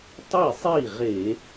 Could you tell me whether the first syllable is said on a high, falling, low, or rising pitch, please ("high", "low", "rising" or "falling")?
falling